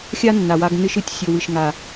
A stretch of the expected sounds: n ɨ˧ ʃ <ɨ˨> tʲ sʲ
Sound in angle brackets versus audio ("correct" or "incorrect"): correct